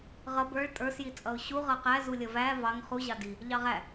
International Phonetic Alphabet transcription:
ʁ ʌ b ə˞ ɭ tʼ ə˞ s j i t͡sʼ ʌ ʊ̯ ɕ u ʁ ʌ q æ z u lʲ ʌ v æ v ɑ ŋ χ u ʑ ɑ d i | ʎ ɑ ʁ æ

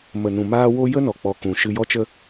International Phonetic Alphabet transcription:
m ə˨ n ũ˨ m aː˦ w o˦ j ə˦ n ɔ˨ k͡p ɔ˨ k ũ˨ ʃ ɨ˧ j ɔ˧ t͡ʃ ə˧

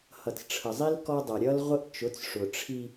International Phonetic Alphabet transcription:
h ʌ˨ t͡s ʈ͡ʂʰ ə˨ zˤ i˦ l k ɔ˦ dˤ ʌ˨ ɾʲ ʌ˦ l ʁʷ ə˦ ʔ t͡ʃ ʊ˨˦ t͡s ʂ ʊ˨ ʈ͡ʂʰ i˦

